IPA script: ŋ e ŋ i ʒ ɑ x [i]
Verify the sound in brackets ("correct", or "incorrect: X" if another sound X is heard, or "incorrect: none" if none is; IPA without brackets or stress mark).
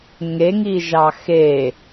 incorrect: e